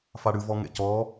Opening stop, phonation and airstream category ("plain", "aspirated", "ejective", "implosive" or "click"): plain